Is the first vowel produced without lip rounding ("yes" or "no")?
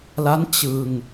yes